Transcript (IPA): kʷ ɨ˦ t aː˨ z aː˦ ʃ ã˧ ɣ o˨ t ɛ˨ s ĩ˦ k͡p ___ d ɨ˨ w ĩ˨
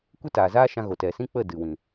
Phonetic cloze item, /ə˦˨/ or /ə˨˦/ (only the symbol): ə˦˨